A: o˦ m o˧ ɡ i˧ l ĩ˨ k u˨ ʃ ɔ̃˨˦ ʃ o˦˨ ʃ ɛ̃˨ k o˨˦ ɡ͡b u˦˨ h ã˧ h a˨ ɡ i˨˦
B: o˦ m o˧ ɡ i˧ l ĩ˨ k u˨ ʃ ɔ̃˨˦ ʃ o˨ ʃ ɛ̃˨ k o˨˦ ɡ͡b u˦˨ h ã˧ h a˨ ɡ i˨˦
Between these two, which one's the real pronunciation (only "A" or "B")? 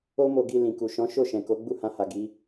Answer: A